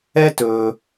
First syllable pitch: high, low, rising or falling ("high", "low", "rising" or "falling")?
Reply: high